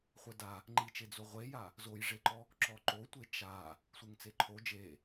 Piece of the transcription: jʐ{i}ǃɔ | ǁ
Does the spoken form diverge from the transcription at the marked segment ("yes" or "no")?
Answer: yes